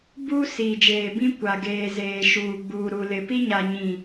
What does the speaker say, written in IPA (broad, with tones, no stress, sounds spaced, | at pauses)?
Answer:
b u˦ s iː˨ d͡ʒ eː˨ b ĩ˦ kʷ a˨ ɡ eː˨ z eː˨ ʃ uː˨ ɡ͡b uː˨ ɾ u˨ l ɪ˨ p i˦ ɲ a˨ ɲ ĩ˨